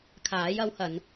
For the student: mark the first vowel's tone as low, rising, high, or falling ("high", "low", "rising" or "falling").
rising